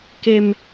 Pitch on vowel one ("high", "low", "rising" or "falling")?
high